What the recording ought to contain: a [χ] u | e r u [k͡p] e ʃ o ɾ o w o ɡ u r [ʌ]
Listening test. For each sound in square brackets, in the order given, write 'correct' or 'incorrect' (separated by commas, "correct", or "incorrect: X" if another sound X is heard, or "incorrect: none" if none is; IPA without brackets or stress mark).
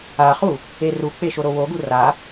correct, correct, incorrect: a